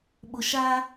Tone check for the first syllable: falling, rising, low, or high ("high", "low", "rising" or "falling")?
low